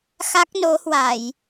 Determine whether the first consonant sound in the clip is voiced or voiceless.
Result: voiceless